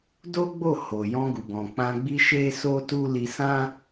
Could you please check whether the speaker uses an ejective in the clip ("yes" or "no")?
no